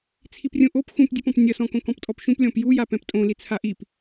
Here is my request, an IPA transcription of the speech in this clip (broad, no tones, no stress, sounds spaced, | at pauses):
t͡sʰ i p rʲ ũ ʔ o p x ũ p dʲ ɨ p ɔ̃ p nʲ ɐ s ɔ̃ k õ k ɔ̃ p tʼ ɔ p ʃ ũ p lʲ ɔ̃ p j u j a p ɛ̃ p tʼ õ l i t͡sʰ a ʔ i p